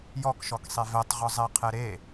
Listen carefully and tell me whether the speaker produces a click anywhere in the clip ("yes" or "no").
no